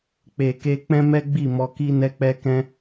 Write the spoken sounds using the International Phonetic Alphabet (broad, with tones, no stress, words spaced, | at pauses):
k͡pe˨ke˧k͡pɛ̃˦mɛ˦ ɡ͡bi˦˨mɔ˧ ki˦nɛ˦k͡pɛ˦kɛ̃˦